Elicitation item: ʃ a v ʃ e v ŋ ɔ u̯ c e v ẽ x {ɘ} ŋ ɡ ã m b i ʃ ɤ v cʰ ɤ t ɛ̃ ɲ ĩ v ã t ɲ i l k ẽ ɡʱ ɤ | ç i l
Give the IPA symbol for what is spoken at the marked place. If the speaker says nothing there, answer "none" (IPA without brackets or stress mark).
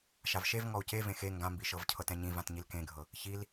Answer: e